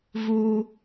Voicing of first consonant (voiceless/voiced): voiced